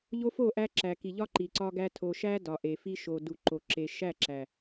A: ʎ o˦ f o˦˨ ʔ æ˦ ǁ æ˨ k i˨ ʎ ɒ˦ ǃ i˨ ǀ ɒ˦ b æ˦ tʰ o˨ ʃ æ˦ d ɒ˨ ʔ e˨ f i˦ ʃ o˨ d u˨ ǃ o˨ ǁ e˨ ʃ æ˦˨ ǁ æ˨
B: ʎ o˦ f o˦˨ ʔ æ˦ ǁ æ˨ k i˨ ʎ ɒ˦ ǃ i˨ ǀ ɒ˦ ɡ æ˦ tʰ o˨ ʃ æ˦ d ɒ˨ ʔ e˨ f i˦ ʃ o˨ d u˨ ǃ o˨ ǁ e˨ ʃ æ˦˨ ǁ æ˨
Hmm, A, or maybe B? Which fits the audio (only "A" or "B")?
B